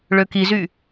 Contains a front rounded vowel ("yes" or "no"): yes